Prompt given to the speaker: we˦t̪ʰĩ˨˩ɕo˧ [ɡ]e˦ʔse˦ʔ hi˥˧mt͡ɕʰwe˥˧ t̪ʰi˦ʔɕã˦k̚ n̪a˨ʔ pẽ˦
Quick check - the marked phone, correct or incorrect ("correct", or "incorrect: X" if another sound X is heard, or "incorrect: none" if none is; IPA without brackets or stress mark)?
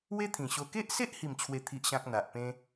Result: incorrect: k